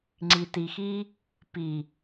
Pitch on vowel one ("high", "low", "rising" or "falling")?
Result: low